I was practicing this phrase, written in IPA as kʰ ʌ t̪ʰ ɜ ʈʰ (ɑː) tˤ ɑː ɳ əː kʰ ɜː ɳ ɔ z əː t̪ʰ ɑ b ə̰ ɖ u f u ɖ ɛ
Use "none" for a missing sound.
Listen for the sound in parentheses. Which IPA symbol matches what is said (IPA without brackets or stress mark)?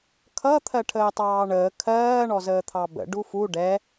əː